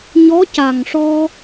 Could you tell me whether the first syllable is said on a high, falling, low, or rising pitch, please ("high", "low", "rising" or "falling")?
rising